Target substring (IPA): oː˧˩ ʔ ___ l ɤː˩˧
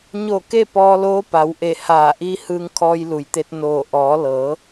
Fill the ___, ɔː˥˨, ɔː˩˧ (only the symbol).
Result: ɔː˩˧